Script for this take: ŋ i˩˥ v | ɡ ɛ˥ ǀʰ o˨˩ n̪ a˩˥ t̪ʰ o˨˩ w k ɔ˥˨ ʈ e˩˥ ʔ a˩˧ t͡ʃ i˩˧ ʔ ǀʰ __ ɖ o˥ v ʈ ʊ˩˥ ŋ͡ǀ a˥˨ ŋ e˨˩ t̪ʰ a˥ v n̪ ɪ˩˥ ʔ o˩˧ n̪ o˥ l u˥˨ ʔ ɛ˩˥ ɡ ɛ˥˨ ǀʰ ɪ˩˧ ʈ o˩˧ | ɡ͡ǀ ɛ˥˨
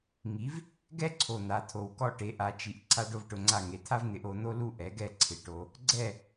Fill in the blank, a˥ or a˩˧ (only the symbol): a˥